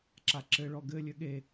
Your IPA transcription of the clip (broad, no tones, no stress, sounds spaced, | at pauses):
ǁ a ǁ ɘ ɭ ɔ ɡ ɘ lʲ ɘ ɠ e